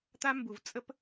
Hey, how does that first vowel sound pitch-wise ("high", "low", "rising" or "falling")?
high